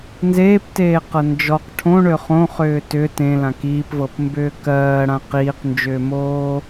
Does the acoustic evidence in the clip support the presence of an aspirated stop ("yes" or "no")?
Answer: yes